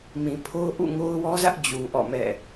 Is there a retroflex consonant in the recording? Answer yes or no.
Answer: no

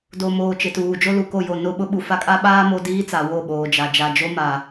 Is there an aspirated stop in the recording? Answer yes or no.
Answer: no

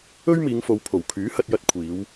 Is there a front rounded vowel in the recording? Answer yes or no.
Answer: yes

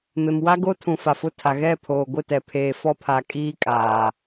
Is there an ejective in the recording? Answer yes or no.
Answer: yes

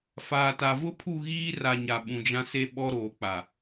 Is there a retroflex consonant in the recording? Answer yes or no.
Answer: no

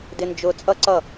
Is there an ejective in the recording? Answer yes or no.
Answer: yes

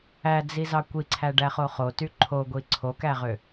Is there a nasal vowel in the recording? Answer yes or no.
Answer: no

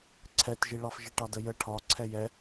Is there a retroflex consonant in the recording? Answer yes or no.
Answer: yes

